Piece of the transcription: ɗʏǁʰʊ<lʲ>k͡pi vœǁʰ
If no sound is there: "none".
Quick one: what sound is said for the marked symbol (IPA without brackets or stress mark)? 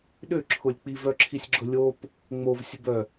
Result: lʲ